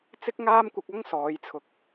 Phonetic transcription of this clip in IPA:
t͡s ɪ˥ k̚ ŋ aː˥ m kʷ ɪ˧ k̚ ɐ˥ ŋ s ɔː˨˧ j t͡sʰ ʊ˨ k̚

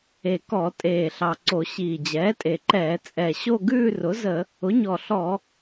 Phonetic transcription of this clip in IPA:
e˨˩ k ɔ˧˩˧ tʼ eː˨˩ ɬ ɑ˨˩ ǀ o˧˩˧ ɕ iː˨˩ d͡ʑ ɛː˩˥ tʼ e˨˩ ǃ ɛː˧˩˧ t͡sʼ ɛ˨˩ ɕ o˥˧ ɡ ʉː˥˧ r ʊ˩˥ z ə˧˩˧ | ʊ˩˥ ɲ ɔ˨˩ ɬ ɔ˧˩˧

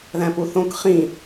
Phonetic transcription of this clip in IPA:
ð æ̃ p u θ õ k χ ĩ

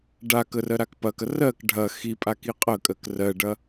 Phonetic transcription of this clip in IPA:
ɖ a k ə r ɜ ɾ a k p ɐ k ɐ r ɜ k ɖʱ ɐ x i pʼ a k i qʼ ə kʼ ɜ k r ɜ ɖ ɐ

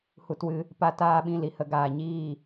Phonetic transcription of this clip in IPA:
h u˧ t w ɨ˧ | p a˧ t aː˧ ɓ ĩ˨ l i˨ h ə˧ ɡ aː˨ ɲ iː˦˨

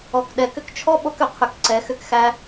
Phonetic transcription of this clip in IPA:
ɔ˩ k ɗ ɛ˩ k ʏ˧ k t͡ʃʰ ɔ˥ ɓ o˧ k ʏ˩ qʰ ʏ˩ k ǀ ɛ˩ x ʏ˧ k x æ˧

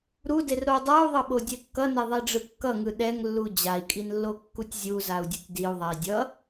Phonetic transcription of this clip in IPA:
ɾ u d e r ɾ o dˤ a u̯ ðˤ ʌ ɓ o dʲ ɛ kː ʌ n e ðˤ i ɖ͡ʐ ɯ kː ʌ ŋ ɯ ɗ ɛ ŋ lː u d͡ʑ a i̯ kʼ i n lː o kː u tʲ zʲ u z a u̯ dʲ ʌ tʲ d i u̯ ðˤ a i̯ dʲ ʌ

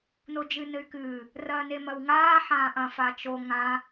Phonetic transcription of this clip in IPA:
n o d͡ʒ ɨ n ɘ y̯ k ɨː | r ɐː n e m ɐ w ŋ aː ħ ãː ʔ ɐ̃ f a t͡ʃ o ŋ ã

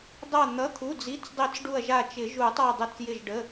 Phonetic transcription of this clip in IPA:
dˤ a˧˩ n̪ ʌ˩˧˩ t̪ʰ u˩˧˩ d͡z i˩˧˩ t͡s dˤ i˨˩˦ t͡s ɖ u˧˩ ɐ̯ ʒ a˧˩ t͡ʃ ɪ˨˩˦ ʒ u˨˩˦ tˤ a˧˩ dˤ ə˨˩˦ t͡s j ɪ˧˩ ʒ ɖ ə˩˧˩

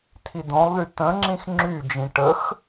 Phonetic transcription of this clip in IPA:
t̪ʰ i d̪ õ lˠ ð y t̪ ə̃ ŋ͡ǁ ĩ x ŋ͡ǁ y d͡ʒ ĩ ʈ ə x

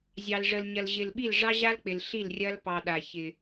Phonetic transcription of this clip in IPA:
zʲ ɑ˨ l ʐ ə˨ l ɲ ɐ˨ l ʑ ɪ˨ l ɓ i˦˨ l ʐ ɑ˦ ʑ a˦ l k͡p ɪ˨ l ɬ i˦˨ l rʲ ɐ˦ l p ɑ˨ ɗ a˨ ç ɪ˨

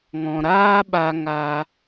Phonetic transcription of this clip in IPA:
ŋ ɔ̃˨ ɾ aː˦ ɓ a˧ ŋ a˧

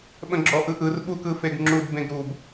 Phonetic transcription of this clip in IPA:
ɓ ə̃ ɡ͡ǁ ɔ ʔ ɯ ʔ ɯ r ɓ u k ɯ f e ɡ ŋ͡ǁ u d b ẽ ɡ ɾ u b

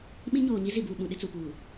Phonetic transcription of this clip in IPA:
ɓ ĩ˦ ɲ oː˨ ɲ i˦ z i˨ b uː˨ ɓ ũ˨ ɗ ɪ˦ t͡s u˨ p uː˨

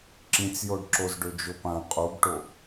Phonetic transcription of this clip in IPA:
ǁ ĩ t͡s j o ɖ ǁ o z ɖ ɵ d͡ʒ o p ã qʼ u ɡ ʈ o

